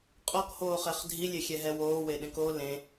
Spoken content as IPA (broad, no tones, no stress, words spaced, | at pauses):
qʼɔkhoːχɛχ dʱilʲexʲɛɦɛ woːweɗẽk o lẽ